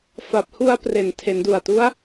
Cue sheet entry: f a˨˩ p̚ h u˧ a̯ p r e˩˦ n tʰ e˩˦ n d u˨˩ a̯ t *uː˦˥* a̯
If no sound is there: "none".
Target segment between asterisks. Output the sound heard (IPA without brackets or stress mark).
u˦˥